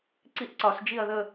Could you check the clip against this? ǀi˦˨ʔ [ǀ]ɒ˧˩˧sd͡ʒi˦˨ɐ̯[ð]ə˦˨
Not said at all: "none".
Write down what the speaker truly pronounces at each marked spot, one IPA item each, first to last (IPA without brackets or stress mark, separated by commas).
ǀ, ð